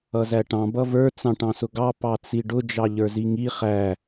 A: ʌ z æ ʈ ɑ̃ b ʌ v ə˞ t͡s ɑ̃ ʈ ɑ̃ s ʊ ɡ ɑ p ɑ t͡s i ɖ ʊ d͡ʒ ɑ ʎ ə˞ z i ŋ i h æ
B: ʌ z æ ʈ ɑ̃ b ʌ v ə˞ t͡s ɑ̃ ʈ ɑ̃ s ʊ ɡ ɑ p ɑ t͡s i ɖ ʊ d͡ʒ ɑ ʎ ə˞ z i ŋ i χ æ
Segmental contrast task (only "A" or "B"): B